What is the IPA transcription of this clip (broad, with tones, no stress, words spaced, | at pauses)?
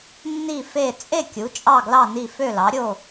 nːi˥˨fe˥˨ t͡sʼe˥˨ kʲu˩˥t͡ʃʼɑ˥˨ɡlɑ˥˨ni˥˨ fø˥˨lɑ˩˥ɾʲo˥˨